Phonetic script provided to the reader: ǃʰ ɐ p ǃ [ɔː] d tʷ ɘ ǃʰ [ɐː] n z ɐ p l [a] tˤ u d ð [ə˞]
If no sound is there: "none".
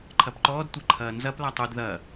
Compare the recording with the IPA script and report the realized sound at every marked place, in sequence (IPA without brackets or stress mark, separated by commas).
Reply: ɔː, ɐː, a, ɐ